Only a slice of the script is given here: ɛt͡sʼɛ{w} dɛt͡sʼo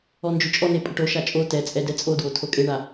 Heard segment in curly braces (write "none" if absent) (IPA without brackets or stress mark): none